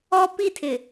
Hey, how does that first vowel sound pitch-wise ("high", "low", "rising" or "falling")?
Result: high